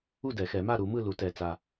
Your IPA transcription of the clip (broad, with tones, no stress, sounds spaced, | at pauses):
u˥˨ d ɛ˨˩˦ x ɛ˨˩˦ m a˥˨ ɾ u˨˩˦ m ɯ˥˨ l u˨˩˦ t ɛ˨˩ t͡s a˨˩